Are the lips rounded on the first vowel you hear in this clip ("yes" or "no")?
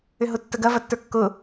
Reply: yes